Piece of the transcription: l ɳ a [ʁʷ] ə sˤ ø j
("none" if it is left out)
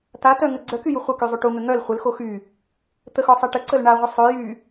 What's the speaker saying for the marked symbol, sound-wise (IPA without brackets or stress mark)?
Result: ʁʷ